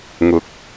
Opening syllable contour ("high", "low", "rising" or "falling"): rising